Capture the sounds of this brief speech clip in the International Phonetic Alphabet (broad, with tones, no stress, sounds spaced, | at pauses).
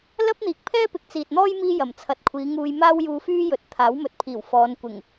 l ɐ˥ p̚ n̪ iː˨ k̚ pʰ ɛː˥ p ɪ˨ k̚ t͡s iː˨ t̚ n̪ ɔː˥ j m iː˥ j ɐ˨˩ m t͡sʰ ɐ˨ t̚ kʷʰ iː˨˧ ŋ uː˧ j m aː˥ w j uː˧ f yː˥ j ɵ˨˥ t̚ t̪ʰ aː˨˥ w m ɵ˨ t̚ pʰ iː˨˩ w f ɔː˨˧ n kʷ ɪ˨˩ ŋ